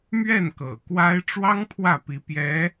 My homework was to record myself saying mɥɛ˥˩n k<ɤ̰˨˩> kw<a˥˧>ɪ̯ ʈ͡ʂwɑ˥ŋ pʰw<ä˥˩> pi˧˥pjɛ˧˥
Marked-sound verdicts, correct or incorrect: correct, incorrect: a˥, correct

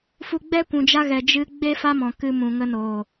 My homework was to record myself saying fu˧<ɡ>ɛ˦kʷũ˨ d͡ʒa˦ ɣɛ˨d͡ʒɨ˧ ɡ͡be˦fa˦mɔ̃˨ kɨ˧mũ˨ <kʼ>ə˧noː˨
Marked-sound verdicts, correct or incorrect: incorrect: ɡ͡b, incorrect: ŋ

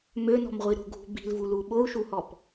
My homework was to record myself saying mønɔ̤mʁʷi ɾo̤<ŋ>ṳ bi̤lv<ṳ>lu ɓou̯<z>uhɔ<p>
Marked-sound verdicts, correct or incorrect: incorrect: ɡʱ, incorrect: u, incorrect: ʃ, correct

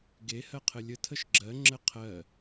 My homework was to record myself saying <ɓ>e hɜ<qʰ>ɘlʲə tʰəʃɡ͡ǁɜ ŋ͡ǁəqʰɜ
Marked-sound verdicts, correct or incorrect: incorrect: ɡ, correct

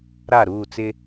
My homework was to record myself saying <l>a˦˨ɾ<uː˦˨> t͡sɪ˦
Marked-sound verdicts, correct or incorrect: incorrect: ɾ, correct

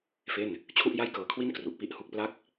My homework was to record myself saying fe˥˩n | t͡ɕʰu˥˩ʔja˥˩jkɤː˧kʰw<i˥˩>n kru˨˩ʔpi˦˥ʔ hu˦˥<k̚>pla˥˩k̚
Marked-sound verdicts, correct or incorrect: correct, correct

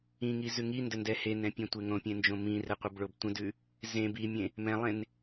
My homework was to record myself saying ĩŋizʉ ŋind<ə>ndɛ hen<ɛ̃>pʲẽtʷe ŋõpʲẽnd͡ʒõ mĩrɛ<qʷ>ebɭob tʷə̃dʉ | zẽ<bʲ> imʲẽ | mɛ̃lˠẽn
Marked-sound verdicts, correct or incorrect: correct, correct, correct, incorrect: b

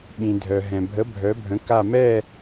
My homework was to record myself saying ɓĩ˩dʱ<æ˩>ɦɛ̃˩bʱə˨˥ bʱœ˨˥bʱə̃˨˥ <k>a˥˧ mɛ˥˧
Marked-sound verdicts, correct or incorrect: incorrect: œ˩, correct

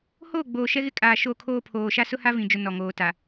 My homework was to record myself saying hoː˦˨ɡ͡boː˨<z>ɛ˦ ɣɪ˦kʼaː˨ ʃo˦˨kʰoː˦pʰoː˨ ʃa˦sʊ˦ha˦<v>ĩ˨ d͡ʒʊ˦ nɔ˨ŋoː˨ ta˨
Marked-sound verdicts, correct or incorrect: incorrect: ʃ, correct

